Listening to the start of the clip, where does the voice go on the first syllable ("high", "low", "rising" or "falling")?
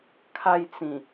high